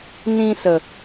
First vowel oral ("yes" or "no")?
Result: no